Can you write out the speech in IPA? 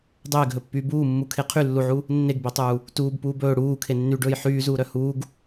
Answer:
dˤeːɡɦɵpːyː buːmːu kʰeqʰylːuʕu | nːeɡbetˤuː | tuːb puːbɵː ɽuː kʰenːyɖɵːj ħyːzuːɾœ huːɡ

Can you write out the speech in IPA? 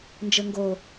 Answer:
nd͡ʒɘŋɡo

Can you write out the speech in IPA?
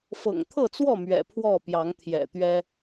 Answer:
fɤ̰˨˩ŋt̪ʰɤ˥˨t͡swɔ˥˨ mɥɛ̰˨˩pʰwɔ˥˨pjɑ˨˦ŋ t̪ʰjɛ̰˨˩t̪ɥɛ˦

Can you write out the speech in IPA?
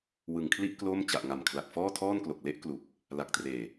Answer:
wɯ˨˩ŋkʰli˥˩ʔ klo˥˩m t͡ɕa˨˩ʔŋa˨˩m kʰla˨˩k̚fɔː˥˩tʰɔː˥˩nklo˨˩k̚ le˥˩ʔklu˨˩k̚ | la˨˩k̚treː˨˩

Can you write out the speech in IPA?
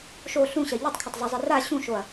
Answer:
ʃo ɬũɕɐ ʎitˤkʰɐtˤzˤɵzˤi ra ɕũʃoɐ̯

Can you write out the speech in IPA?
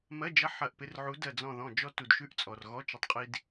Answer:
mɜ˧˥˧d͡ʒɐ˧˥˧ħɐ˧˩ʔ pɪ˧rʕu˨˥ dɜ˧˩d͡zɔ̃˧˩ðɔ̃˧˩ d͡ʒɔ˧ tu˩dʃʉ˧˩ʔ t͡sʼɔ˩rɣɔ˧˥˧t͡ʃə˨˥tˤqʼi˧d

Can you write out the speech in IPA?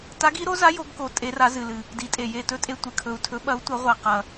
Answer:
ta˧˥ɡi˧˥ɾo˧˥za˧˥ jo˧˥ɡko˧˥ tʼe˧˥ra˧˥zɨ˧lɨ˧ | di˧˥tʼe˧ je˧tɵ˧˥tʼe˧ tʷɨ˧kʰɵ˧u̯tʰɵ˧˥ɓɐ˧˥u̯ tʷɐ˧˥ʁʷa˧ qɐ˧

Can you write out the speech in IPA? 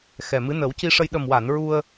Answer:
xɛ˨˩mɨ˧˥ nə˨˩˦wci˧ʂə˧j ɗə˨˩mwa˨˩˨n ɹu˧ə̯

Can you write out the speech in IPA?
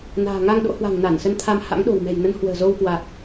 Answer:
na̤ː˨˩ŋa˧ŋɗo̰˧˥ hwa̤˨˩ŋ na˧˩nsə˧nt̪ʰa˧m ha̰˧˥ŋɗo̤˨˩wmɛ̤˨˩j nə˨˦nhwə̤ː˨˩zo˧wkwa˨˩k̚

